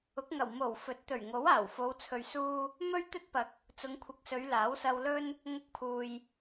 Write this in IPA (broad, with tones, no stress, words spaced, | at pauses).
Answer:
ʊ˨˥k̚ŋɐ˨˩w mo˨˩w fɵ˨˥t̚t̪ɵ˨˩ɥŋo˨˥w aː˨˩wfo˨˧w t͡sʰɵ˨ɥsuː˧ | mɵ˥ɥ t̪ɵ˥t̚pɐ˨k̚ | t͡sʊ˨˧ŋkʷʰɪ˨˥k̚sɵ˨˧ɥ laː˨˥wsɐ˧wlɵ˥n | ŋʊ˧k̚pʰuː˨j